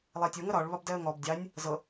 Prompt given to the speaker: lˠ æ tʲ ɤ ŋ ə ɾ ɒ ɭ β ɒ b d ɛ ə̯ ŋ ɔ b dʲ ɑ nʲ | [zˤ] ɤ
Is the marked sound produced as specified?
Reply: no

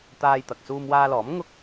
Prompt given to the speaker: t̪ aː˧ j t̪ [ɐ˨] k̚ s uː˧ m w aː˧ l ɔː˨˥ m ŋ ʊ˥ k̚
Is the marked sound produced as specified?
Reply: yes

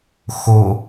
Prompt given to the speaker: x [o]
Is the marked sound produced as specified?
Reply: yes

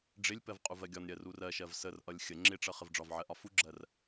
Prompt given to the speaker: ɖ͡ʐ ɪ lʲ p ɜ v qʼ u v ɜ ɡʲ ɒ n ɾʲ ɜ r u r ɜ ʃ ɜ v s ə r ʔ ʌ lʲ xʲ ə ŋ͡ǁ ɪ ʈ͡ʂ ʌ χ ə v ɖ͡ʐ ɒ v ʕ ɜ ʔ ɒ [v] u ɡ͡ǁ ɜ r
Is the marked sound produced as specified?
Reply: no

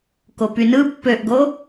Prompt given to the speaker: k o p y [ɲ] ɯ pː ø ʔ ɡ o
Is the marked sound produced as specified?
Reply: no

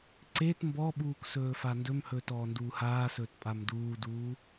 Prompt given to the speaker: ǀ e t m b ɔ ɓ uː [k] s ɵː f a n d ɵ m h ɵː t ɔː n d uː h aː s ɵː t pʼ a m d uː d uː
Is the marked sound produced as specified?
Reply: yes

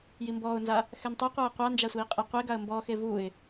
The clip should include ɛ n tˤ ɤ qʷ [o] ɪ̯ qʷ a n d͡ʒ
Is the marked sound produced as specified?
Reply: no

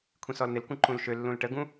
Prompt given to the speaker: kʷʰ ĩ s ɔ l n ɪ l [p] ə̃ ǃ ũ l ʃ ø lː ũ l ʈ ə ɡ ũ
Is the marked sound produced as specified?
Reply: no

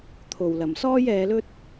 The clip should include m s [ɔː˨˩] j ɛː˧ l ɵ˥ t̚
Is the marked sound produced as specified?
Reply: no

